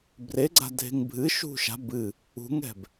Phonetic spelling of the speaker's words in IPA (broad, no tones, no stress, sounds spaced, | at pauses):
b r e ɡ͡ǀ a̤ dʱ e̤ ŋ bʱ ɨ ʃ ṳ ʃ a̤ b ɨ | ṳ ŋ ɛ̤ b